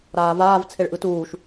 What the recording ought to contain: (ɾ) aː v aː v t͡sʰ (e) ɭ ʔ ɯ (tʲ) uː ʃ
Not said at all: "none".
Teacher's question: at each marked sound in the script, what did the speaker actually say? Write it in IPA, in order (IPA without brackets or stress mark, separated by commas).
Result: ɾ, e, t